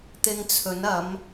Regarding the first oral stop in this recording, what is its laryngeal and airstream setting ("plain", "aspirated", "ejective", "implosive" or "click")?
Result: plain